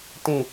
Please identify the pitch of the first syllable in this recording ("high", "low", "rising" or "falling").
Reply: low